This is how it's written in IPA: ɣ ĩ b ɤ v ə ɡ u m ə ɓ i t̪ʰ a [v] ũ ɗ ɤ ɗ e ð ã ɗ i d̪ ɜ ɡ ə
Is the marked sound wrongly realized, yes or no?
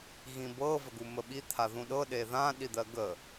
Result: yes